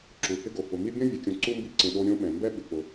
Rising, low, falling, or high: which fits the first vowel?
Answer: low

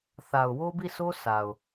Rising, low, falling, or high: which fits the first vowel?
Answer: low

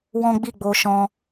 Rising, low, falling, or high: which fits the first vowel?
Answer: high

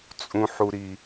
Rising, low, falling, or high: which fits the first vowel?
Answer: high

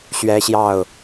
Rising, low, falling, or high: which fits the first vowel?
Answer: high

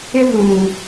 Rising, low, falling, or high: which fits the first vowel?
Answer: high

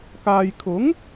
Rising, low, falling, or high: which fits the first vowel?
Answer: low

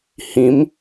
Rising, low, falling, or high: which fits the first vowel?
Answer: rising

